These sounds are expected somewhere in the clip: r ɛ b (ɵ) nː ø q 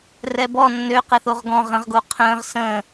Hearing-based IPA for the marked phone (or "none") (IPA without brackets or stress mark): ɔ